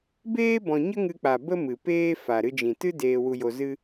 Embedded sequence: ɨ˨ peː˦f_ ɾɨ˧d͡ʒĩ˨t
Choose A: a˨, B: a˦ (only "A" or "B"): A